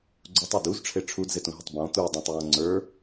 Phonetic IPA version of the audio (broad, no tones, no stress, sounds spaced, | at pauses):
ɡ͡ǀ u tˤ e d u z ʈ͡ʂʰ e ʈ͡ʂʰ u d z e t ũ ɦ ɪ tˤ b ɔ̃ t̪ u dˤ ũ tˤ j ɔ̃ ŋ͡ǀ ə˞